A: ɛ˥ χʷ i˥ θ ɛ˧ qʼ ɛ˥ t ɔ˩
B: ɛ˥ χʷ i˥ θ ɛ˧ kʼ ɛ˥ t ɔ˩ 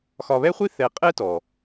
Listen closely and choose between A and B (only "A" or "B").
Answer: A